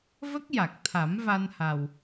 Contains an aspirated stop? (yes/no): yes